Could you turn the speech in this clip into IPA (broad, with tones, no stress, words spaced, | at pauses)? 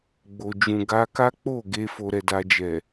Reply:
ɡ͡bo˨d͡ʒũ˨ ɡa˧ka˦k͡po˦˨ɡe˧ fo˧ɾɛ˧da˧ d͡ʒɛ˨